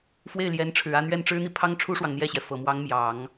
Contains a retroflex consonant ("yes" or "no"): yes